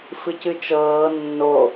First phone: f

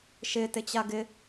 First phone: ʃ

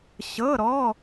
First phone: ɕ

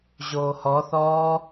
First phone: ʑ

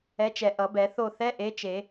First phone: ɛ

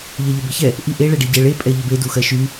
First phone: ʎ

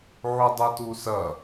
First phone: ʕ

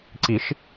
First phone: ǀ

